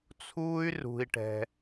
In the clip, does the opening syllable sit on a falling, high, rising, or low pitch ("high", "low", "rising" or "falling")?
high